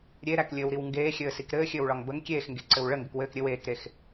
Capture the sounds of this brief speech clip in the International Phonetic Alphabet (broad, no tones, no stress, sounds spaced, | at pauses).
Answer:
ɾʲ e ɾ æ k lʲ ɘː w ɾ i w ŋ ɡ eː xʲ ɘː s i k ɾ ɘː xʲ ɘː w ɭ ɒ ŋ b ə ŋ kʲ eː x ŋ ɡ e ǀ ɘ w ɭ ə ŋ ɡ ɘ k w ɘː k ɾʲ ɘ w eː k ɾ e x